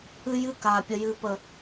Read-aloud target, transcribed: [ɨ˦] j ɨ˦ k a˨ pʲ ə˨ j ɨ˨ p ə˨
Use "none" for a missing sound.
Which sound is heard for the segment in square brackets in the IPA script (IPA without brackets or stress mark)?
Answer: ɨ˦